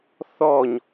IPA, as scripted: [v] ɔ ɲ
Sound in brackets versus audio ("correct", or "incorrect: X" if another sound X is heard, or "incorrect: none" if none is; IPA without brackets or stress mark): incorrect: θ